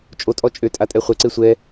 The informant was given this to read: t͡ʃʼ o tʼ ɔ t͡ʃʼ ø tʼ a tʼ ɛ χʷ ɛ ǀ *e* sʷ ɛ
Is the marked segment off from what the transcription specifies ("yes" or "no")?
no